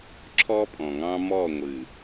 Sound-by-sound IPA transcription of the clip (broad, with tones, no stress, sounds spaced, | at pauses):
ǁʰ ɔː˦ pʼ ɔ̃ː˨ ŋ ɑ̃ː˦ m ɔː˦˨ ŋʷ ɨː˨